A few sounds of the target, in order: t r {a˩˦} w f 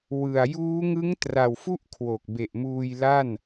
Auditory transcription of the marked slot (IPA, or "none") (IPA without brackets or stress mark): a˨˩